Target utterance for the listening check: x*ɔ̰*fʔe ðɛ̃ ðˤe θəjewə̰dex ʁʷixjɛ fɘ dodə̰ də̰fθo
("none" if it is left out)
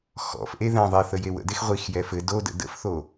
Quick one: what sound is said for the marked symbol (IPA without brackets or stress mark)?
ɔ̰